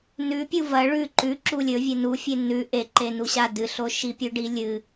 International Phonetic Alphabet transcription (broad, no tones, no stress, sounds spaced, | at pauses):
n ʉ pʲ u v ɐ ɭ ʉ ǃ ʉ ǁ u lʲ ɵ vʲ e n u fʲ e n ʉ ʔ e ǃ e n u ɕ a d ɨ ɬ o ʃ i pʲ ʉ ɖ i lʲ ɨ